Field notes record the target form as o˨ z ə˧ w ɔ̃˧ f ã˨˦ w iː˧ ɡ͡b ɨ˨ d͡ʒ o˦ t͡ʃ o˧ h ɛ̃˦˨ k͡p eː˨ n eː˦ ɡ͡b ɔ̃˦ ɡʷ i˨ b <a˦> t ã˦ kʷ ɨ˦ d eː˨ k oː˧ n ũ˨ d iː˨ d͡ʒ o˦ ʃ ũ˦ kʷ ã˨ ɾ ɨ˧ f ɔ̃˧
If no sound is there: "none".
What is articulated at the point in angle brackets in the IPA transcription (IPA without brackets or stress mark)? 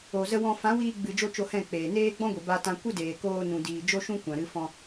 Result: a˦